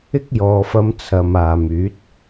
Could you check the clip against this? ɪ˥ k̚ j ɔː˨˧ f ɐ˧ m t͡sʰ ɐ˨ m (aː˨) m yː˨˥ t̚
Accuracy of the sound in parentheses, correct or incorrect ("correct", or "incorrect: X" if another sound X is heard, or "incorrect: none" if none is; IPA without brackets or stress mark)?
correct